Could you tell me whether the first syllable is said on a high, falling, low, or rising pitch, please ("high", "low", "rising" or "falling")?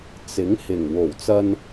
rising